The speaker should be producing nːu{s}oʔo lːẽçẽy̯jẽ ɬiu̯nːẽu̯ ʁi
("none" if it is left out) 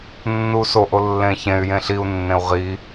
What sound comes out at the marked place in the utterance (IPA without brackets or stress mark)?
s